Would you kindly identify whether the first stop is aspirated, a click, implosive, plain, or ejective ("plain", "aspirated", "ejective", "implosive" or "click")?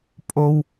ejective